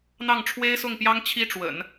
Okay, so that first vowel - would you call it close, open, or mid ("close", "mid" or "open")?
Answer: open